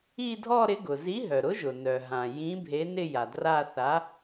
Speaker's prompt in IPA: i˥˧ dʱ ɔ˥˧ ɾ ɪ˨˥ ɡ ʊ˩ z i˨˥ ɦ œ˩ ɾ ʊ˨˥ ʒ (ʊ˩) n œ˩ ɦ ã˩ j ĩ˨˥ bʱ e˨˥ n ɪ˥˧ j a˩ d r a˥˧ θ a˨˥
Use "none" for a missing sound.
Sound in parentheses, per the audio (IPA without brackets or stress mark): ʊ˩